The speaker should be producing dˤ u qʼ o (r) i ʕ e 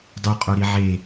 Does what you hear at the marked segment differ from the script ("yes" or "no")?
yes